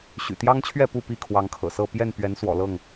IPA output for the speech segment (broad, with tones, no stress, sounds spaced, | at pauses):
ɕ y̰˨˩ t̪ j ɑ˦ ŋ t͡ɕʰ ɥ ɛ˥˨ p u˥˨ p i˥˨ kʰ w ɑ˨˦ ŋ kʰ ɤ̰˨˩ s ɤ˥˨ p j ɛ˥˨ n p ɥ ɛ˨˦ n s w ɔ̰˨˩ l ɤ˥˨ ŋ